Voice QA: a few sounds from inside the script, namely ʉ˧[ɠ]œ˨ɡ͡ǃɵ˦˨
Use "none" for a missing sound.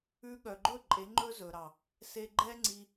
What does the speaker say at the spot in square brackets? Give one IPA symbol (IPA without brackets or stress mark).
ɠ